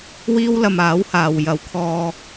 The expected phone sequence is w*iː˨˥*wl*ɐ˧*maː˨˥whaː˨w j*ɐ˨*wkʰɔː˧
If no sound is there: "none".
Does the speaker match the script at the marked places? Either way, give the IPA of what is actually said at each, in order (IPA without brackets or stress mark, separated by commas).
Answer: iː˥, ɐ˧, ɐ˨